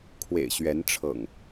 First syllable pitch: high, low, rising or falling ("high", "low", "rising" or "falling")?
low